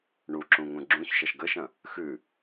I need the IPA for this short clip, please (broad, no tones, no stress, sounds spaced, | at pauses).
ɳ u ǁ ũ ŋ ũ ɡ͡ǁ ũ ç ʃ ɐ ʃ ɡ ə ʃ ɐ̃ | x ʉ